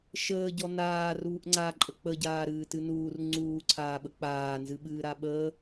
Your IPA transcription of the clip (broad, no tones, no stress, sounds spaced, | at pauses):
ʃ əː ɟ ɔ n aː r uː ʔ ŋ͡ǀ a ǃʼ ə k͡p ə ɟ aː ɾ ɨː t ɨ n uː r ŋ͡ǀ uː ǀʰ aː ɓ ə k͡p aː n z ɨ ɓ ɨː ɾ a ɓ ə